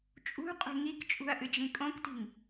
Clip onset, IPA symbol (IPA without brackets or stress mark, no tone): t͡ʃʼ